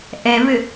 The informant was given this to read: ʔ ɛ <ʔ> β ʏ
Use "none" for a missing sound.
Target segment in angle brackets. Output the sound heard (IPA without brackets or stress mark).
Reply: none